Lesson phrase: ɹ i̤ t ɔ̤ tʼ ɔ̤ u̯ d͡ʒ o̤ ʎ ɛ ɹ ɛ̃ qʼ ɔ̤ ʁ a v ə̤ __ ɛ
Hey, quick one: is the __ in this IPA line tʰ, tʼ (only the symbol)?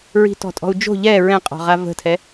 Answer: tʰ